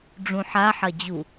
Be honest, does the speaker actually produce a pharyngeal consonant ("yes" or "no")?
yes